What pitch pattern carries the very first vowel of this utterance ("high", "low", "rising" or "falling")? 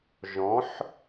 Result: rising